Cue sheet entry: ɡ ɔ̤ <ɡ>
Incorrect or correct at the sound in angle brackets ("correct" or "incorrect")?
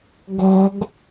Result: correct